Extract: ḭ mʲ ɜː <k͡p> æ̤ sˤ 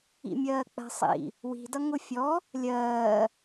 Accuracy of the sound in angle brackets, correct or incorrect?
correct